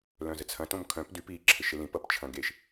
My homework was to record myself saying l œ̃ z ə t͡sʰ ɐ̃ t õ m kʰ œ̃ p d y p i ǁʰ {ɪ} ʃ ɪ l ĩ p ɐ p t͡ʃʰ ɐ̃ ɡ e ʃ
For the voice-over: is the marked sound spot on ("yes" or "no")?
yes